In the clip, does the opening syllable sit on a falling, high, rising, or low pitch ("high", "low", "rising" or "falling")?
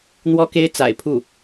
high